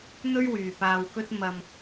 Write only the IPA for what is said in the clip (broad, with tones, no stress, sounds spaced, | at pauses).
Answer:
n̪ ɵ˥ ɥ w yː˨ p aː˧ w k ɵ˥ t̚ m ɐ˧ m